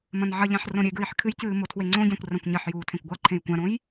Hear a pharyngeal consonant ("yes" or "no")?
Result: yes